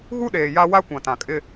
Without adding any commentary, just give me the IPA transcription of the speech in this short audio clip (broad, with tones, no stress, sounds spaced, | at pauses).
ɣ u˦ ɗ eː˨ j a˦ w a˦ kʷ ã˨ t ã˨ kʼ ɪ˦